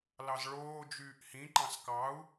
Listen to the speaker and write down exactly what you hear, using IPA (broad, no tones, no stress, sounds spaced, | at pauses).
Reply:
l ɑ z ɭ oː d͡ʒ yː ʔ h ĩ ǃ ɑ̃ s k ɑ u̯